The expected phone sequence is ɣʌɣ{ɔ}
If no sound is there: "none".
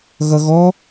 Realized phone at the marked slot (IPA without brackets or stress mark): ɔ